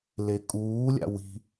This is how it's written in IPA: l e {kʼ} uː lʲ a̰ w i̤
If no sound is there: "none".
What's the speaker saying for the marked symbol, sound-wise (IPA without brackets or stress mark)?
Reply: kʼ